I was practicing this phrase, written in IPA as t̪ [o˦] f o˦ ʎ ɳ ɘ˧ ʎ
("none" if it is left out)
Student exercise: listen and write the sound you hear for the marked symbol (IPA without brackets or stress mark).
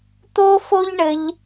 o˦